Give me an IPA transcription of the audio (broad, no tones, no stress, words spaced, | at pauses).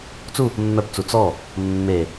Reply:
t͡su | mːœpt͡su t͡sɔ | mːe